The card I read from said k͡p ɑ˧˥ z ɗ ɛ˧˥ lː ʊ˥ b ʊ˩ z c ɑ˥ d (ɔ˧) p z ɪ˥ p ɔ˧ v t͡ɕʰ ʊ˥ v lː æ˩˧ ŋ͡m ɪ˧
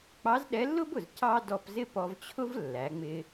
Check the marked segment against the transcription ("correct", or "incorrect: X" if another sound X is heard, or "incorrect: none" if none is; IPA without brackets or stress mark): correct